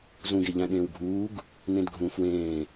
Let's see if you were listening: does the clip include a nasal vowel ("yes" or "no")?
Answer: yes